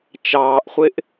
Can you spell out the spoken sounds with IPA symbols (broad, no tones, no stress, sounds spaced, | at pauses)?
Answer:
t͡ʃ ɑː ʔ χʷ ɪ ʔ